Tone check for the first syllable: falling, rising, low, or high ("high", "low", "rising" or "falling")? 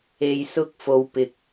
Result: low